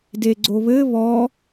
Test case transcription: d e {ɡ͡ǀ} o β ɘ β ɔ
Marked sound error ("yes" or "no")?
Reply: no